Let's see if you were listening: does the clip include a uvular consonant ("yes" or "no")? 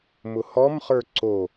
yes